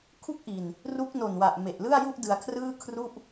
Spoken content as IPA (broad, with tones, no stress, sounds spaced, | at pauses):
kʰ u˦˥ k̚ ʔ i˧ n | r u˦˥ k̚ n o˨˩ n w a˨˩ ʔ m e˨˩ ʔ l ɯ˥˩ a̯ j u˥˩ ʔ d ɯ˧ a̯ kʰ r ɯː˥˩ kʰ r u˥˩ ʔ